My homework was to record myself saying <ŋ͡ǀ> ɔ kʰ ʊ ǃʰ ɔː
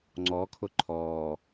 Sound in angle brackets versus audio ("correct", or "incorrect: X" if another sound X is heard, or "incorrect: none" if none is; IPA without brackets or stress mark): correct